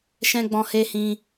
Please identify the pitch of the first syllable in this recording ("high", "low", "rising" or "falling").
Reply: high